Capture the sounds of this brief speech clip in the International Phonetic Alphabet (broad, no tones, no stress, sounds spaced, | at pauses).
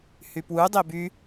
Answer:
h y p w u dˤ e b y